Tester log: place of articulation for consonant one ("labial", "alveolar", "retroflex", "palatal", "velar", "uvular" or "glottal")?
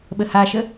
labial